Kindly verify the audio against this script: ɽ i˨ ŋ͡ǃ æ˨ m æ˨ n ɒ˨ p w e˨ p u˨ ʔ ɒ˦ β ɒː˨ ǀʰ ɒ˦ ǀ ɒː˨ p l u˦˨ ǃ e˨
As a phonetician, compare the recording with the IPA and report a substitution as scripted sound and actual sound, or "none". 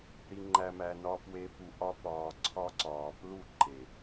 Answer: β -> p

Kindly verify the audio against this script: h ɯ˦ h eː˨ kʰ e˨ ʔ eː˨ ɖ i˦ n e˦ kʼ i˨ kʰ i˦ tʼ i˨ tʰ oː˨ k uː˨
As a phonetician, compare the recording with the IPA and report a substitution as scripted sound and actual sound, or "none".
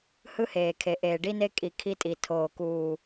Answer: none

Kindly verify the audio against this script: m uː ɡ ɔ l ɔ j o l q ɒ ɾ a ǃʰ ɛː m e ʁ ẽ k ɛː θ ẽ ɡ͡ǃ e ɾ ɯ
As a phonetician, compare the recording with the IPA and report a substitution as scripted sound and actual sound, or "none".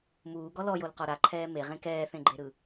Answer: none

